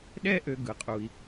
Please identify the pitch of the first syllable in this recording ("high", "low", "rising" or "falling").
high